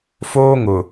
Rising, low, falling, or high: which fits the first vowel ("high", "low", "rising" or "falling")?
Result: high